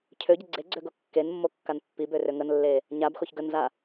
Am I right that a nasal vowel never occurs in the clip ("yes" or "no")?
yes